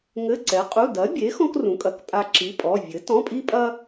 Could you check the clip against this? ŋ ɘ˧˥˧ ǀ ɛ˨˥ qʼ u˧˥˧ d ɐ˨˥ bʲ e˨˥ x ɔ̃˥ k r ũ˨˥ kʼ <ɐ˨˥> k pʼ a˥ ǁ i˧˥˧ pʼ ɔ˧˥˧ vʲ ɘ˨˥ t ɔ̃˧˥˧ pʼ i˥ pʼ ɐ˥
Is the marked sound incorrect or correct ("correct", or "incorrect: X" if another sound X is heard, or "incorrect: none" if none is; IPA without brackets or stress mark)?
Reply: correct